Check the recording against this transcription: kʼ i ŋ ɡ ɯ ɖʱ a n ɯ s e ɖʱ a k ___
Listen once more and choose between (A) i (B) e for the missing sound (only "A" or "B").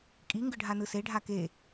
B